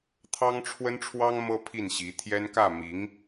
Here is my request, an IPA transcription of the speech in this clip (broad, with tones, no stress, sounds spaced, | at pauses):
t̪ʰ ɑ˥ ŋ ʈ͡ʂʰ w ə˥ n ʈ͡ʂʰ w ɑ˥ ŋ m ɤ˥ pʰ i˥˩ n ɕ i˧˥ t̪ʰ j ɛ˥ n k ä˥˩ m i˧˥ ŋ